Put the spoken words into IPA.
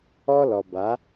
ɔ˦ l ɔ˨ b a˨˦

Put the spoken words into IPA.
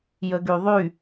j ə ɡ y ðˤ y

